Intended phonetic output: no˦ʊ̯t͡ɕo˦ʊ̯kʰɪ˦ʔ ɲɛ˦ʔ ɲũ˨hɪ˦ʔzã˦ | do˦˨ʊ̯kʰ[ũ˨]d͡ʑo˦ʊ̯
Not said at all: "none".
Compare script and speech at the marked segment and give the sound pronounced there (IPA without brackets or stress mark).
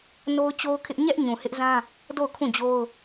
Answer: ũ˦˨